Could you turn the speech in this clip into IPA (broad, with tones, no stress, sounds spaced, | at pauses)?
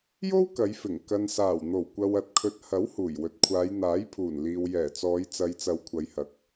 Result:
j o˥ w k ɐ˨˧ j f ɪ˨˩ ŋ k ɐ˨ n s aː˨˩ w n̪ o˨˩ w kʷ ɐ˨ w ɐ˨˥ t̚ kʰ ɵ˨ t̚ h ɐ˨˥ w h uː˨˩ j w ɵ˨ t̚ kʷʰ aː˨˧ j n̪ aː˨˥ j pʰ uː˨˩ n l iː˨ w j ɛː˨˩ t͡s ɔː˨˧ j t͡s ɐ˨ j t͡s ɐ˨˧ w kʷʰ ɐ˨ j h ɐ˨˥ k̚